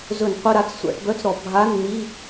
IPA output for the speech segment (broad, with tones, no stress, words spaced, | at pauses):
zɵ˧˩˧nqʷɘ˧˥˧ɾa˧˥˧t͡s sʷa̰˧˩˧ʈbœ˧˥˧t͡sɾɔ˧˩˧ bʱa˧˥˧nn̪i˧˥˧